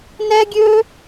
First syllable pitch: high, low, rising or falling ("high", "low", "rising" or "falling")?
high